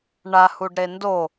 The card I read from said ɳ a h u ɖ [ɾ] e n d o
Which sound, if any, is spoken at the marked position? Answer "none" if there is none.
ɾ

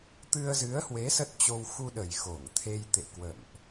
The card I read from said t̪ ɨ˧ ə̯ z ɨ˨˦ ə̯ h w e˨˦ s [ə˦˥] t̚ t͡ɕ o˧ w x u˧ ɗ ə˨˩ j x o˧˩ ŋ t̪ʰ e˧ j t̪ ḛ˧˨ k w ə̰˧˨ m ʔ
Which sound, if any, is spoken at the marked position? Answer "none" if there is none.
ə˦˥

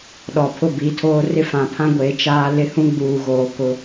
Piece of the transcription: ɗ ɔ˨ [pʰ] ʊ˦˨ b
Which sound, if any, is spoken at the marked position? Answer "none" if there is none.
pʰ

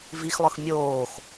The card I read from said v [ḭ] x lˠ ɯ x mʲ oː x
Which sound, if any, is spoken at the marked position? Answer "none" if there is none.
i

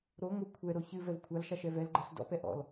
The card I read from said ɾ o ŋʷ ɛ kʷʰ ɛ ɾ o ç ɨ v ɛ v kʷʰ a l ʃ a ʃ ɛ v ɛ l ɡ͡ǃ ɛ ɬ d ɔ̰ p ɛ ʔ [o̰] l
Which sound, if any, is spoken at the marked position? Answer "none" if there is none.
ɔ̰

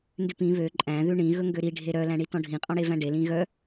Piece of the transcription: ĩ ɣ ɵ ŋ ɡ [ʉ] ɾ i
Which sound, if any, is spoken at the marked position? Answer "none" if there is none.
ø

